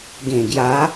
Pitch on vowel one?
low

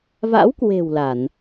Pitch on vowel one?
rising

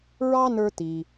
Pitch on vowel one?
high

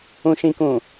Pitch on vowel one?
low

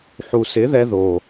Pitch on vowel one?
low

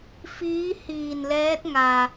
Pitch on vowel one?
rising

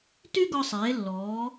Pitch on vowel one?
high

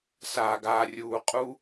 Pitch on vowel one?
low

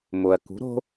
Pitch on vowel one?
low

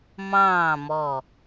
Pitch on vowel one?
falling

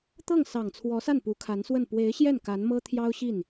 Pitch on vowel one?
falling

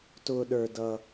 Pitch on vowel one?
low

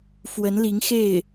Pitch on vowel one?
rising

